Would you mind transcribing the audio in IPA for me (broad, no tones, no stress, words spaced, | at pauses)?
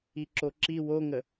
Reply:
iǁoǁi woŋə